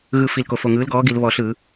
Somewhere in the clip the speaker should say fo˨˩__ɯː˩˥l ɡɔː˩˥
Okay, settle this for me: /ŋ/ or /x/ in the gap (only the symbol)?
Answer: ŋ